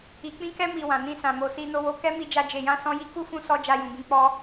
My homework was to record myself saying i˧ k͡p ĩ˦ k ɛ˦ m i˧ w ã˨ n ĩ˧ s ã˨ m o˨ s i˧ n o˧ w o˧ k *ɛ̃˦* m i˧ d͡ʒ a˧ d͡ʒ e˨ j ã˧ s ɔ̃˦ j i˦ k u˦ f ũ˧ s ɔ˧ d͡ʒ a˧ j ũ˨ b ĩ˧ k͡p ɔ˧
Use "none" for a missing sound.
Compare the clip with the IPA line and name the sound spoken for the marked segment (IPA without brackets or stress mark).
ɛ˦